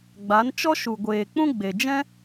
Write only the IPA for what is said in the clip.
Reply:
ɡ͡b a˨˦ n t͡ʃ ɔ˦ ʃ u˨ ɡʷ eː˨ k͡p ũ˦ ɡ͡b e˨ d͡ʒ ɛ̃˦

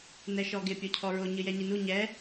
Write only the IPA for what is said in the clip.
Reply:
n ɛ ʃ ɔ ɡ ɪ pʲ o cʰ ɔ ɹ o ɲ ɨ j ɛ ɲ i n u ɲ ɛ

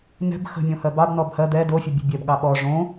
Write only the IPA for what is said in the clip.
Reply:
n ɛ̤ b x ə̤ mʲ õ h ɜ b ɑ b n ɔ b h ɜ d̪ ɛ d o fʲ ə bʲ ə̤ bʲ ɛ b ɠ ɑ ɓ ɔ ʐ õ

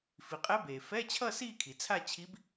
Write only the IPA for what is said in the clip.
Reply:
f i˩ qʼ ɛ˧˥ b eː˩ f ɛ˧˥˧ t͡ɕʰ ʌ˥˧ s iː˥˧ kʰ i˩ t͡sʰ a˥˧ t͡ɕʰ i˧˥ b

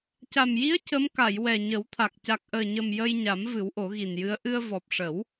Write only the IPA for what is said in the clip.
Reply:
c a˨˩ m j i˧˥ ə̯ c ə˧˥ m k a˨˩˨ j w ɛ˨˩ ɲ ə˨˩˦ w t̪ʰ a˨˩ k̚ c a˨˩ k̚ ʔ əː˨˩ ɲ ə˨˩ m j ə˧ j ɲ a˨˩˦ m v ɨ˨˩˦ w ʔ o˨˩˦ ɣ i˨˩ n j ɨ˧˥ ə̯ ʔ ɨ˧ ə̯ v ɔ˨˩ p̚ ʂ ə˨˩˦ w

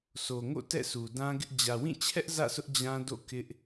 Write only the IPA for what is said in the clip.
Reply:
s o˨ ŋ o̰˦˨ t ɛ̰˦˨ s u˨ d ã˦ ɡ ɪ˦ ʔ d͡ʑ ä˨ w ĩ˦˨ t͡ɕʰ ɛ˦ ʔ z ä̰˦˨ s ʊ˦ ʔ d͡ʑ ã˦ d o̰˦˨ k ɪ˦ ʔ

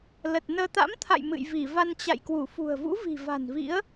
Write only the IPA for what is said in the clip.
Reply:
l ə˨˩ t̚ n əː˧ t̪ a̰˧˥ m t̪ʰ a̰˧˨ j m ɨ̰˧˨ j v i˧˩ v a˧ n t͡ɕ a̰˧˨ j k w u˧˩ f ṳ˨˩ ə̯ v ṵ˧˥ v i̤˨˩ v a̤˨˩ n v ḭ˧˥ ə̯

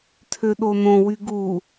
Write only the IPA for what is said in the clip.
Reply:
tʰ ø ɗ o n õ w y ɡ u

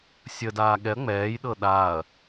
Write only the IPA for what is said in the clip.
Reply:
sʲ ə d aː ɠ ɛ ɐ̯ ŋ͡m ɛː j ɗ ɤ ɗ aː ɐ̯

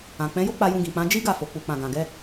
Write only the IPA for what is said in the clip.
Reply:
ã˨ k͡p ɛ̃˨˦ j o˦ k͡p a˧ j ũ˧ ɡ ĩ˨ k͡p ã˨˦ d͡ʒ i˦ ɡ a˦˨ f o˨ k͡p u˨ k͡p ã˨ ɡ ã˨ ɡ ɛ˧

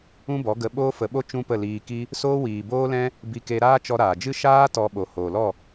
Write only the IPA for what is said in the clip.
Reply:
ũ˦ b ɔ˨˦ ɡ ə˧ ɓ oː˦ f ə˨˦ ɓ o˦ t͡ʃ ũ˦ p ə˦˨ l iː˧ k i˦ | s oː˦ w iː˨ b oː˦ l ɛ̃˦ | b i˧ k e˧ ɾ aː˦ t͡ʃ ɔ˧ ɾ aː˨ d͡ʒ ɨ˦ ʃ aː˦ t ɔ˧ ɓ o˨ h oː˨ l ɔ˦˨

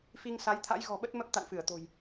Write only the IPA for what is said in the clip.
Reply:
f i˧ ŋ s a˨˦ j t̪ʰ a̰˧˥ j ɣ ɔ̤˨˩ ɓ ə˦˥ t̚ m ə˦˥ p̚ t̪ a̰˧˨ n f ɨ˧˩ ə̯ t̪ o̤˨˩ j

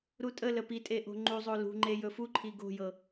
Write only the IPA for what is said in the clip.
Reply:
ɾ u tʼ ə l ə p i tʼ e ʔ o̤ ŋ͡ǃ u zˤ o l ṳ ŋ͡ǃ e j ɵ f u ǃʰ i ɡ o̤ j ɤ

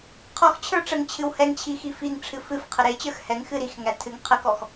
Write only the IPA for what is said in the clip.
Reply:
qʰ ɔ x t͡ɕʰ ə˞ ʈ͡ʂ ə ŋ t͡ɕʰ ɨ w h ɛ ŋ t͡ɕʰ i x i f i ŋ ʈ͡ʂʰ ɨ f ɨ f qʰ ə ɾ e t͡ɕ ə˞ x h ɛ ŋ x ɨ ɾ i x ŋ æ tʰ ɨ ŋ qʰ ə k ɔ x

